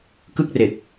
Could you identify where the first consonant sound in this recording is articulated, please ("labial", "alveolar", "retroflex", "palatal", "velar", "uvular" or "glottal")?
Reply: velar